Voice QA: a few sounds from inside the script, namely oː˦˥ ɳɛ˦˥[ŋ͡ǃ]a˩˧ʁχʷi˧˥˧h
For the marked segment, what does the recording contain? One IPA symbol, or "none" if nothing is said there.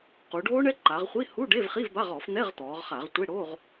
ǃ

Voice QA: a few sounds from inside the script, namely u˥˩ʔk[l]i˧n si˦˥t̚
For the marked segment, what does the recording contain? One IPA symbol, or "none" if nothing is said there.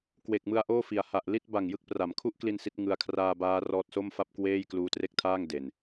l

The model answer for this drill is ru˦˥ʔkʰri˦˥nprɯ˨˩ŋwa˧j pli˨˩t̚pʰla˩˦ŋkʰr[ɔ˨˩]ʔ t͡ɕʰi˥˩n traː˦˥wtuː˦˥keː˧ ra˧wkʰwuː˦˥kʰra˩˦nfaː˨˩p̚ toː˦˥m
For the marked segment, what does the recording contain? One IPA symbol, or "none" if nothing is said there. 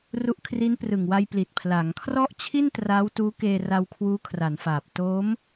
ɔ˥˩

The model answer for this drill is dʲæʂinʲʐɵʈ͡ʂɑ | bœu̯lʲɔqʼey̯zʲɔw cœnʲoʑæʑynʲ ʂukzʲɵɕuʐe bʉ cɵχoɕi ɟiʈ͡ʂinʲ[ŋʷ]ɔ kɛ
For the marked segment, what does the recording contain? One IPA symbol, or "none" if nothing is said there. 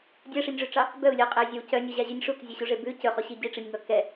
ŋ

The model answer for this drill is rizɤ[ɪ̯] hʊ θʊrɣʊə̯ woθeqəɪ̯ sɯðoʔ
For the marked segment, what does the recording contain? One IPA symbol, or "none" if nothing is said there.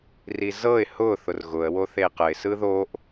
ɪ̯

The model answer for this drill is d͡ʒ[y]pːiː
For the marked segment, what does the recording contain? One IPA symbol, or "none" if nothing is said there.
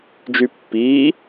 y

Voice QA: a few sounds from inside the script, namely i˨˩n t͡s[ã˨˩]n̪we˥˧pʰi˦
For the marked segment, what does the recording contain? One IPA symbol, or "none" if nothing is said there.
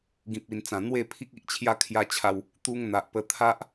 ã˨˩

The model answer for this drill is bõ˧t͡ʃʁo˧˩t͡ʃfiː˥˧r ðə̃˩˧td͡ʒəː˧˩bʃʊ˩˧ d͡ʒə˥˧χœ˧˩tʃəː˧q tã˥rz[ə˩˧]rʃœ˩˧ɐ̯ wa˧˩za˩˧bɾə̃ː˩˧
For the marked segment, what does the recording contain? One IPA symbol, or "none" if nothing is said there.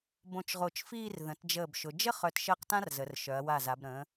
ə˩˧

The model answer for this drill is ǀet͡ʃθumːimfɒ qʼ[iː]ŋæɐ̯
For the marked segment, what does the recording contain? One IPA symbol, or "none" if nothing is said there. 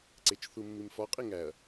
i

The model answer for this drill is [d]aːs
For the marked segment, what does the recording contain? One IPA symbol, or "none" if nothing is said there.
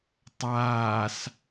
tˤ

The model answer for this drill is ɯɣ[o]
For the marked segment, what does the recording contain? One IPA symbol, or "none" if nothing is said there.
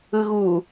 u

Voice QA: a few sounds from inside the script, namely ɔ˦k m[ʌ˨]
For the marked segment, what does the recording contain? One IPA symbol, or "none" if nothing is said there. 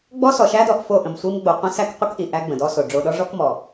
ɔ˨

